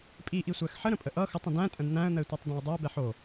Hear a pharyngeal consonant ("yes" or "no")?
yes